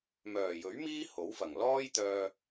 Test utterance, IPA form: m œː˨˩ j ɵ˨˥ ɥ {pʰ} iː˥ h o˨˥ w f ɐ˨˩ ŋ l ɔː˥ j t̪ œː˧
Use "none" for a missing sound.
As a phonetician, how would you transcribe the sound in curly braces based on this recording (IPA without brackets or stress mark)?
m